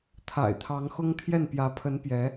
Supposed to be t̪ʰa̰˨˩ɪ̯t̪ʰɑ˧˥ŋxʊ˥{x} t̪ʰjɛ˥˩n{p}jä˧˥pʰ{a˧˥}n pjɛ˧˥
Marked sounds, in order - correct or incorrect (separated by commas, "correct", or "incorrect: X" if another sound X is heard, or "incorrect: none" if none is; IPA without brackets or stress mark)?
incorrect: ŋ, correct, incorrect: ə˧˥